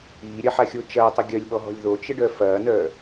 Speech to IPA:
iː ɾʲ ɐ ħ a xʲ o t͡ʃ ɐː tˤ ə ɡʲ œ lʲ ɓ ɔ ɦ ɔ̤ lʲ ð o t͡ʃ ə ɖ œ f ɐː n œ

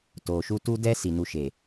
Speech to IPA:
t oː˨ ʃ u˦ t u˦ d ɛ˦ s i˨ n u˦ ʃ eː˨

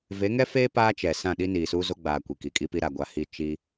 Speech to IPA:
v e˨˦ ŋ ɛ˦ f eː˦ p aː˦ t͡ʃ ɛ˨ s ã˦˨ ɗ i˦ n iː˨ s uː˦ z o˦ ɡ͡b aː˨ kʷ i˨ k i˨ kʼ i˦ p i˦ ɾ a˨ ɡʷ a˨ h i˦˨ t͡ʃ i˦

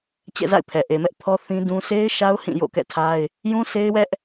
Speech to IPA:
t͡ɕ ɛ̰˦˨ z a̰˦˨ ɪ̯ pʰ ɛ˨ ʔ e˨ m ɛ˦ ʔ pʰ ɔ˦ θ ĩ˦ d ũ˦ sʰ e˦ ɪ̯ ʃ a˦ ʊ̯ h ĩ˦˨ j o̰˦˨ k ɛ̰˦˨ tʰ a˦ ɪ̯ | j ũ˦ s e˦ ɪ̯ w ɛ˦ ʔ

